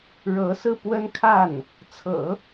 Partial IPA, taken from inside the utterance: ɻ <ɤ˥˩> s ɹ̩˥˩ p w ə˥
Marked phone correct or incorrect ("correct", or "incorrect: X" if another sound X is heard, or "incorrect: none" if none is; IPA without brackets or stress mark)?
incorrect: ɤ˧˥